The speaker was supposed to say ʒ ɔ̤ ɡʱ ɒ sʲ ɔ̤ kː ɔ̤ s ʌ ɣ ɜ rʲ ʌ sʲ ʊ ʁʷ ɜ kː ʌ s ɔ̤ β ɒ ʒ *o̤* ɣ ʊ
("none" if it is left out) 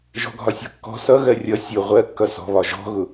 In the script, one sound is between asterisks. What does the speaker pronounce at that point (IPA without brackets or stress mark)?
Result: ɔ̤